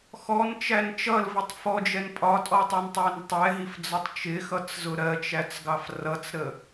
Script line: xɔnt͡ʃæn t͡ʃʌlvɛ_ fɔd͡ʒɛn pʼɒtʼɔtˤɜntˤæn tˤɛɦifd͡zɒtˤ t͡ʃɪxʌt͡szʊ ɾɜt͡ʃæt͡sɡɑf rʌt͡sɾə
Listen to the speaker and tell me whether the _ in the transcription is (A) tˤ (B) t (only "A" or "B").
A